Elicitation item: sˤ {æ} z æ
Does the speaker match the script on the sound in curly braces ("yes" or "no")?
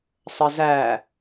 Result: no